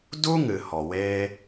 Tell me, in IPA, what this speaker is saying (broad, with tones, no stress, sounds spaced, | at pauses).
d u˦ ŋ ɨ˨ h ɔ˨ w eː˦